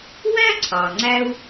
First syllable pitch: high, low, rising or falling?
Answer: high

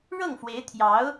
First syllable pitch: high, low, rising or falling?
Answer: falling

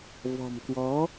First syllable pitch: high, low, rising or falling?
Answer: low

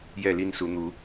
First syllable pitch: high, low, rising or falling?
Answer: falling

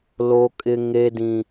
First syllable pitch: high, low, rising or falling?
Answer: high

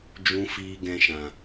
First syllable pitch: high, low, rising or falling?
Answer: high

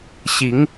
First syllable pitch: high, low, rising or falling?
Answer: rising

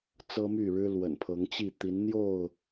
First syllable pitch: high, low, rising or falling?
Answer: high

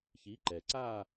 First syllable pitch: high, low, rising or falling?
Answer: rising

